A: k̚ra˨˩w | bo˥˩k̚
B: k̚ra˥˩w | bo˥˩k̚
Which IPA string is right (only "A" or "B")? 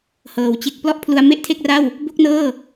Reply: B